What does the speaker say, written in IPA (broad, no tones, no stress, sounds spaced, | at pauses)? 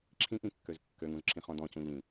ǁʰ ĩ ʔ ĩ kː ø z kː ø ŋ ũ z ǁʰ ĩ χ ɔ̃ d ɔ̃ c ũ ʎ ĩ